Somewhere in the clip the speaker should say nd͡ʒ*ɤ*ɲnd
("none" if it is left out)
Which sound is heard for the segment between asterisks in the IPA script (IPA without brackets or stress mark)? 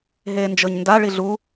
ɤ